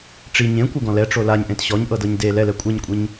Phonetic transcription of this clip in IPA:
ʈ͡ʂi ɲẽkʷɯɡɔ̃ lɛʈ͡ʂo laɲʔẽt ɕɔɲʔɤdɤɲ de lɛlɛ kʷʼɛɲkʷʼiɲ

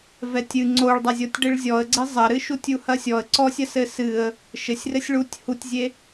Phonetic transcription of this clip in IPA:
vɛtʲɨ ŋ͡ǀoɭdˤɐzʲɔtʲ ɖeɭzʲɔə̯ɡ͡ǀe zˤɐɾɨʃutʲ uhɐsʲɔə̯ ǀɔsʲɐsɘ sɨə̯ | ʃɘsʲrɘsʲ ɭutʲ hutʲzʲe

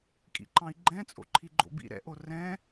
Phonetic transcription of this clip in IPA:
kʼḭǃɑ̃i̯ɡ͡ǃɛ̃ t͡sʼo̰ǃʰiɡ͡ǃo̰bḭ ɾɛ̰ʔo rɛ̃

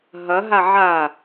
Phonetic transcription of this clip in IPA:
ɦɐɦa ʕa

